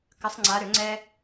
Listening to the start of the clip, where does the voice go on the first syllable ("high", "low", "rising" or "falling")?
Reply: rising